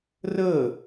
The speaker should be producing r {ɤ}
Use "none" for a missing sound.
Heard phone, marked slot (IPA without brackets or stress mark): ɤ